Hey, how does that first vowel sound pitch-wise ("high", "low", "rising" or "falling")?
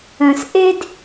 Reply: low